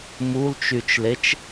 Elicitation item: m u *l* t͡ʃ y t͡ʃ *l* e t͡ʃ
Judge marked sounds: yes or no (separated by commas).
yes, yes